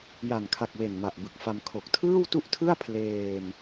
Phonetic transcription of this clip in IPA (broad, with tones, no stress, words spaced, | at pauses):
ja˨˩nkʰa˨˩k̚we˨˩n ma˨˩ʔbɯ˨˩k̚fa˧m kʰo˨˩k̚tʰɯː˥˩wtu˥˩ʔtʰɯ˥˩a̯ pʰleː˧m